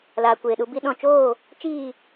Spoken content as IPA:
l aː˨ kʷ eː˨ ɗ u˧ b i˧ ɗ ɔ̃˨ t͡ʃ oː˦˨ | t͡ʃ iː˦˨

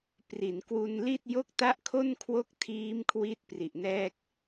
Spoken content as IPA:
p r i˩˦ n k w u˧ n l i˥˩ t̚ j o˥˩ k̚ t a˥˩ ʔ kʰ o˥˩ n kʰ w o˦˥ k̚ tʰ iː˦˥ m kʰ w i˥˩ t̚ p r i˨˩ ʔ n ɛː˥˩ k̚

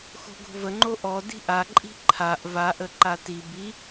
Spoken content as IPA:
x o̤ ɡ o̤ v ə ŋ͡ǃ o ʔ ɔ d i̤ ʔ a ǃʼ i̤ ǃʰ a ʔ v a ʔ ə ǃ a t i b i

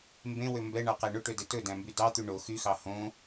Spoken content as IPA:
m b ẽ w ø m b ɛ ɳ ɑ q æ ɳ ɵ ʈ ø d e t ɵ d æ̃ m b y d ɑ t̪ y ɳ o x y x ɑ h õ

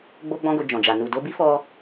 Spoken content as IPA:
ɡ͡b o˦ ɡ͡b ɔ̃˦ ɡ o˧ d͡ʒ ɔ̃˨ d͡ʒ a˨ n u˨ d o˧ b i˦ f ɔ˦

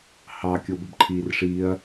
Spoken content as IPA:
h ɑ kʲ o b ə b ǃʰ iː r ʂ iː ɐ̯

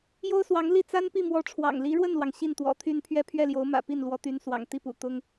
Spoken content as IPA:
j o˥ ʊ̯ s w ɑ˧˥ ŋ l i˥˩ t͡s a˥ n p i˥˩ m w ɔ˧˥ ʈ͡ʂʰ w ɑ̰˨˩ ŋ l i˧˥ ɻ w ə˥˩ n l w ɑ˩ ŋ ɕ i˥˩ n t̪ w ɔ̰˨˩ t̪ʰ y˥˧ n pʰ ɥ ɛ˥˧ pʰ ɥ ɛ˥˩ l j o˧˥ ʊ̯ m ä̰˨˩ p i˥˩ n l w ɔ˧˥ t̪ y˧˥ n s w ɑ̰˨˩ ŋ t̪ i˥˩ p ṵ˨˩ t̪ ʊ˥ ŋ

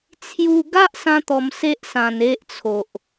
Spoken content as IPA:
t͡sʰ j u˧ ɡ a˦ ʔ s ã˦ t̪ ɔ˧ m s e˦ ʔ s ã˧ n e˦ ʔ t͡sʰ o˨ ʔ

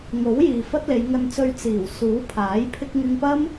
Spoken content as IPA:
ŋ o˨˥ w j iː˨ f ɐ˥ t̚ l e˨˧ j ŋ ɐ˨ n t͡s ɵ˨ ɥ t͡s iː˨˩ w s uː˨˥ pʰ aː˨˥ j pʰ ɪ˧ k̚ ŋ ɪ˧ ŋ p ɐ˥ m

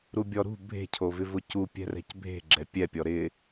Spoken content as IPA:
ɾ u bʲ ɔ ɾ ṳ bʱ e̤ cʰ o v ɪ v ʊ c u pʲ ɛ̤ r ɛ̤ c bʱ e̤ ɡ͡ǁ ɛ pʲ ɛ pʲ ɔ ɾ ɪ

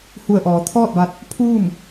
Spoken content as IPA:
h u˧˩ ə̯ ʔ ɔː˩˧ t̪ʰ ɔː˥˨ t̚ ʋ a˧˥ t̚ | pʰ uː˥˨ m

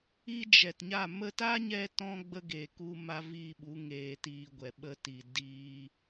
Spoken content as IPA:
i˦ d͡ʒ ɛ˨ t ɲ a˦˨ m ə˧ t a˦ ɲ ɛ˧ t ɔ̃˧ ɡ͡b ə˦ ɡ eː˨ k u˧ m a˦ v i˦˨ ɓ u˨˦ ŋ eː˧ t iː˧ ɡʷ ɛ˨ ɓ ə˧ t i˨ d iː˧

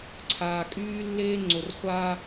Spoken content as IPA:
ǀʰ aː˨ kʼ yː˦ lː eː˦ ŋ͡ǀ o˨ r χʷ aː˦

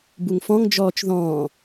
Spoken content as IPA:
b u ŋ f ɔ̃ ŋ d͡ʒ ɔː t͡ʃ ð ɔ̃ː

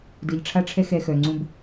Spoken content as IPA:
d ɨ˨ ʎ ʈ͡ʂʰ a˦ ʈ͡ʂʰ ɛ˦ x ɛ˦ x œ˨ ŋ͡ǀ ũ˦ b

